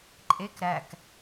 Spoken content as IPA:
ǃʼ e k ɾ æ k

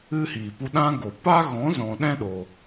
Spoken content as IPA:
ɨ˦ h iː˨ p u˧ ɗ ã˦ ɡ o˨ p a˦ ɣ ɔ̃˨˦ z ɔ̃˨ ɗ ɛ̃˦ ɗ o˨

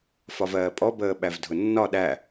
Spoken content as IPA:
f ɒ v ɜː pʼ ɔ b əː ɓ æ v dʱ ʊ nː ɒ ɗ æ

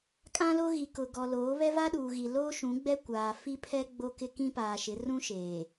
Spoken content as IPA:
kʼ ã˦ l o˦ ɣ i˨ k ʊ˨ ɡ ɔ˨ l oː˨˦ β ɛ˦ v a˦ ɗ uː˨ ɣ i˨ l oː˦ ʃ ũ˨˦ ɡ͡b ɛ˦ kʷ aː˨ f i˦ pʰ ɛ˦ ɡ͡b o˦ k ɪ˦ k ĩ˦ p aː˨ ʃ ɪ˨˦ r ũ˦ ʃ eː˨

